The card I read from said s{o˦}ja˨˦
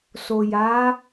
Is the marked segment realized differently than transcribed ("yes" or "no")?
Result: yes